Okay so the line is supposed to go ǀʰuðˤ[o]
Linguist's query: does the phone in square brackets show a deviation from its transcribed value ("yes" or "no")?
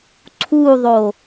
no